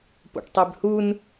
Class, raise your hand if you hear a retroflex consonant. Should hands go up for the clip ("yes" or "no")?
yes